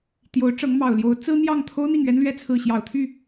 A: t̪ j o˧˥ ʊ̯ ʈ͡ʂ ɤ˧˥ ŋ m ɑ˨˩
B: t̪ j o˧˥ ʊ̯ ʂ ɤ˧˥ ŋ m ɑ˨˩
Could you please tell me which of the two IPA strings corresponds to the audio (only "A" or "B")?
A